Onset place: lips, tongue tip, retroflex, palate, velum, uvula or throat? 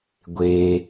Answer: velum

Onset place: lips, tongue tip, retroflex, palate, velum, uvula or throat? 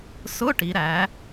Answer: tongue tip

